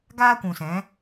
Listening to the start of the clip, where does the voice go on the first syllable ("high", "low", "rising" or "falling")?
high